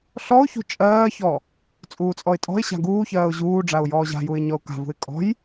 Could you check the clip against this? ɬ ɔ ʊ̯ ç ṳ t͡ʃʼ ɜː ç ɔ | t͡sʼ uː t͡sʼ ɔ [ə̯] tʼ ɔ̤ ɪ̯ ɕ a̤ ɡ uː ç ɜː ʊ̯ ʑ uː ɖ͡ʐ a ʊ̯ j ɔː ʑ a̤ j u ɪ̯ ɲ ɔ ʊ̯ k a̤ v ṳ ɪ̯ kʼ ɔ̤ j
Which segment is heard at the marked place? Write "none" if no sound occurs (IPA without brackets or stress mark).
ɪ̯